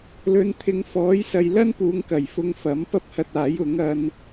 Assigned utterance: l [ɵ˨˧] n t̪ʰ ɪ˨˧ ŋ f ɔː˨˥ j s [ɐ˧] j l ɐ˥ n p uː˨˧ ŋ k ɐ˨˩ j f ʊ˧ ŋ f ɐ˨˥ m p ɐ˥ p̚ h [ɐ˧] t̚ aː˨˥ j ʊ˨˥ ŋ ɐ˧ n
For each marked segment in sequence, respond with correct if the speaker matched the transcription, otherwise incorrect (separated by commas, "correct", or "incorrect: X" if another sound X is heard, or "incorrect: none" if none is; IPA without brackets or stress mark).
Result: correct, incorrect: ɐ˨, correct